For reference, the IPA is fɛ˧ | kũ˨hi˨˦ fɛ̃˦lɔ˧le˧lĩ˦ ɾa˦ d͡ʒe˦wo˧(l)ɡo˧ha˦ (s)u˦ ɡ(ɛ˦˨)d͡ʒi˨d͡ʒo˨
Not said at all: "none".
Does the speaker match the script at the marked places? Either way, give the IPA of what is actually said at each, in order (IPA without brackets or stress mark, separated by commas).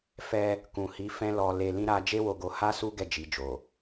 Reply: none, s, ɛ˦˨